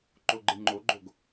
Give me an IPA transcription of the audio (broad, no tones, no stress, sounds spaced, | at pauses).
ǃ o ɡ͡ǃ ɯ ŋ͡ǃ o ɡ͡ǃ o ɡ